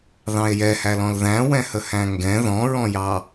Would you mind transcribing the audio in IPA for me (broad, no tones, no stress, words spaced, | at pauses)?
ðɑ̃e̯jɛhælɔ̃l ðæ̃wɛ̃hə hæ̃ŋɡɛ̃ ðɔ̃ɹɔ̃jɑ